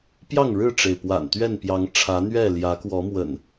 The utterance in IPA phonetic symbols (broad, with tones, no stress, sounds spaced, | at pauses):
p j ɑ˥˨ ŋ ɻ ɻ̩˥˨ ʈ͡ʂ e˩ ɪ̯ p w a̰˨˩ n t̪ ɥ ɛ˥˨ n p j ɑ˨˦ ŋ ʈ͡ʂʰ ä˨˦ n̪ ɥ ɛ˥˨ l j ä˨˦ k w ɔ˨˦ m w ə̰˨˩ n